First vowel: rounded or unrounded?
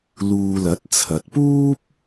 rounded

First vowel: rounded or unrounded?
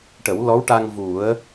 unrounded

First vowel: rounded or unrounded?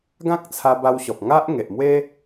unrounded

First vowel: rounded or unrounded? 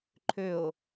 rounded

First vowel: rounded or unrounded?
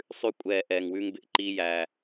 rounded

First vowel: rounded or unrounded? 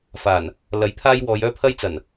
unrounded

